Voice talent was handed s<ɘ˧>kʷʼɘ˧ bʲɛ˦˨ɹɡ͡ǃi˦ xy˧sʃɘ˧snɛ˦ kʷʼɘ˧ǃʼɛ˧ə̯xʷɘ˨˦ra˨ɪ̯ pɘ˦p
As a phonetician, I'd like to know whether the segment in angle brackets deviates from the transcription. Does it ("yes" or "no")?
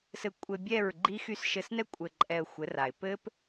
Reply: no